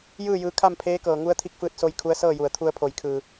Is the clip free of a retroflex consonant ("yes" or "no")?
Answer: yes